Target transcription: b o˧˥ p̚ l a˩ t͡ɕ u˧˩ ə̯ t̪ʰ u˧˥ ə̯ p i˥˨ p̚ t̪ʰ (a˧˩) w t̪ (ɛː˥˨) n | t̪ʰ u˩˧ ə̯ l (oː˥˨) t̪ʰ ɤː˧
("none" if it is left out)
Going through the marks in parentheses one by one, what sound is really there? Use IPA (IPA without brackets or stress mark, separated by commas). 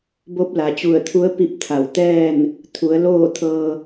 a˧˩, ɛː˥˨, oː˥˨